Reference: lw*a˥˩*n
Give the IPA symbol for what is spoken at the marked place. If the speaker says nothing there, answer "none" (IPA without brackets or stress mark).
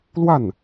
a˥˩